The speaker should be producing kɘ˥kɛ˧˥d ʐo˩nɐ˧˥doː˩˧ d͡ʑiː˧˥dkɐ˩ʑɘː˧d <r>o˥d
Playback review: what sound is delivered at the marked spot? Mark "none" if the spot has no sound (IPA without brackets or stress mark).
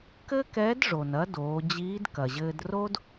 r